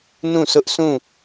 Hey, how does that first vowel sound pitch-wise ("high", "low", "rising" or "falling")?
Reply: falling